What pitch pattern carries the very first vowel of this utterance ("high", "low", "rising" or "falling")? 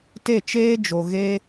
falling